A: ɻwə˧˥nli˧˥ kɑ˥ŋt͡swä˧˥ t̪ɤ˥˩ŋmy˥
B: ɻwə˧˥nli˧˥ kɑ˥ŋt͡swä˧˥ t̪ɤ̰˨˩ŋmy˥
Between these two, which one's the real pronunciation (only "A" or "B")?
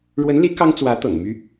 B